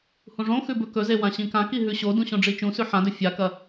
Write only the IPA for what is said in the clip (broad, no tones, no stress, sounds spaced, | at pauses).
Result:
h ũ ʐ õ x ʉ b ɵ k ɵ z e w ã ɕ ĩ k ã k i ɦ ʉ ɕ o d ũ ɕ õ ɖ͡ʐ i t͡ʃ ũ s ʉ ħ ã d ɵ fʲ a k ɐ